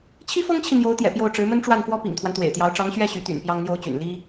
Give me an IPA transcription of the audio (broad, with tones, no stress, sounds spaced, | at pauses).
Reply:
t͡ɕʰ i˥ f ɤ˥ ŋ t͡ɕʰ i˨ n̪ j o˧˥ ʊ̯ t̪ j ɛ̰˨˩ p j o˥˩ ʊ̯ ʈ͡ʂ ɻ̩˧˥ m ə˥ n ʈ͡ʂ w a˥˩ n f w ɔ˥ p ḭ˨˩ ŋ t̪ʰ w a˦ n t̪ w ḛ˨˩ ɪ̯ t̪ j ɑ˧˥ ʊ̯ ʈ͡ʂ ɑ˧˥ ŋ ɕ ɥ ɛ˥˩ ɕ y˧˥ t̪ y̰˨˩ n p j ɑ˥ ŋ n̪ j o˥ ʊ̯ t͡ɕ y̰˨˩ n l i˥